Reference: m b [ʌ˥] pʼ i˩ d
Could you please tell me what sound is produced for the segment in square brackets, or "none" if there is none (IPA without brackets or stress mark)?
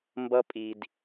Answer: ʌ˧